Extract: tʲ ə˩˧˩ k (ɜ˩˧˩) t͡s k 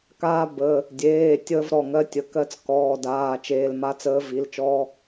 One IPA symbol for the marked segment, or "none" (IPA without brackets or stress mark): ɜ˦˥